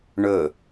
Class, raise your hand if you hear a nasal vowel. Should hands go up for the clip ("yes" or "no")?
no